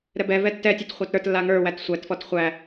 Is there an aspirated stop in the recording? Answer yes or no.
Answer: no